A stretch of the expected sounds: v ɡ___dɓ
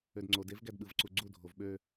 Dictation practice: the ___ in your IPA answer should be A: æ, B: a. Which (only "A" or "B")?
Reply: A